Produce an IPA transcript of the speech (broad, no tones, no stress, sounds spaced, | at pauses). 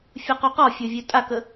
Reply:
fʲ u q u q ɔ fʲ ə˞ vʲ ø tʼ a k ə